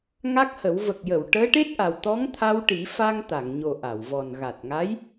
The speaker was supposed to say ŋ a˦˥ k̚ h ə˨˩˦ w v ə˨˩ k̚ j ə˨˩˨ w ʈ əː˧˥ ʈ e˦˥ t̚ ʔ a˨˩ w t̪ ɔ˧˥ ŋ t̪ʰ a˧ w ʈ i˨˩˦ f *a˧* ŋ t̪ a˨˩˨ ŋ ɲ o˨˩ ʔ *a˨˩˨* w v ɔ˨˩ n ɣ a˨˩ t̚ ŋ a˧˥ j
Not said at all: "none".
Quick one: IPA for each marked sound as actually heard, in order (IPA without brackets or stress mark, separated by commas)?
a˧, a˨˩˨